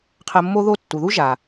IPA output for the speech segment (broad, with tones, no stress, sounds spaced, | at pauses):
qʰ ə˧ mː o˦ ð o˦ tː u˨ ð u˦ ʒ a˨